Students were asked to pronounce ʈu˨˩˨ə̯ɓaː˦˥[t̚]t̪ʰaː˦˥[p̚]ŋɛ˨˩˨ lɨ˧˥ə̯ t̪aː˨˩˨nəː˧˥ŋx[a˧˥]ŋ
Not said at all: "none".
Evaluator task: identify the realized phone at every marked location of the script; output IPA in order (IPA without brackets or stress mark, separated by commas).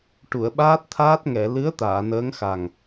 t̚, t̚, a˨˩